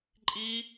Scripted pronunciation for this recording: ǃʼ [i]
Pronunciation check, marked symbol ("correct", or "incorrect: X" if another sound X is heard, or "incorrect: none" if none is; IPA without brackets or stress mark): correct